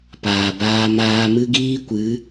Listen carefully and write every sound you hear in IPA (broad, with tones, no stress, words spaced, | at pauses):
paː˨baː˦maː˦ mɨ˦ɡiː˦kʷɨ˨˦